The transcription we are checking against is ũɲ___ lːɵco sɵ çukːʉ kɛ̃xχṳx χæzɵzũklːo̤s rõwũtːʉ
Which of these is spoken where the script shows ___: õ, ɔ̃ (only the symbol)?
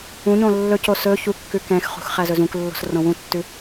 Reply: õ